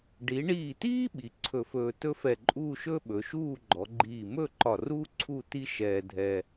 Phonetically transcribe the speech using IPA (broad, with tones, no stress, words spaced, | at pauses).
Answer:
ɖi˩˧ɳiː˧˩tiː˥ ɓi˩˧ǀʰɵ˧˩fɵː˧ tɵ˥fɛ˧˩ǃʼuː˥˧ ʃɵː˥ɓɵ˩˧ʃuː˥˧ ɡ͡ǃɔ˩˧ɡ͡ǃiː˧˩ mɵ˥˧ǃɒ˧˩ruː˥ ǀʰu˥˧ ti˥ʃɛː˧ dʱɛ˧